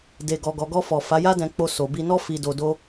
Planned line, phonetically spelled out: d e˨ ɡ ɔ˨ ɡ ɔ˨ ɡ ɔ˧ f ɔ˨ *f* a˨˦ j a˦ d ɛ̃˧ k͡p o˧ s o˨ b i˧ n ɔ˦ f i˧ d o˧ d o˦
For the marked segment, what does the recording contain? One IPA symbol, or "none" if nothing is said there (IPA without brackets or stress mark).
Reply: f